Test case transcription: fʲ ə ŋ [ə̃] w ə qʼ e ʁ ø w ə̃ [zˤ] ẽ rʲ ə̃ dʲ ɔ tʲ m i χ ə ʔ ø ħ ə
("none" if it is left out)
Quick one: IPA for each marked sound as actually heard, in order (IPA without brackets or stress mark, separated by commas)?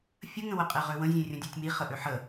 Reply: ə̃, zʲ